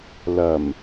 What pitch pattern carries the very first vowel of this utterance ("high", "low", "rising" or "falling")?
low